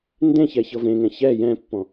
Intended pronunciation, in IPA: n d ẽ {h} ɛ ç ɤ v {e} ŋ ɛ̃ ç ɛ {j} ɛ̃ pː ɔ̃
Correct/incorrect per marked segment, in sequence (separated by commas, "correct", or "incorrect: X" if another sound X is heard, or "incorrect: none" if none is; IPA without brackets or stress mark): incorrect: ç, incorrect: ẽ, correct